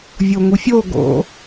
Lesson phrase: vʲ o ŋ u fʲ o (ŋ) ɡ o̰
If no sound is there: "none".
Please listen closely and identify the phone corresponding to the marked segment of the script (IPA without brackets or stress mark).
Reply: none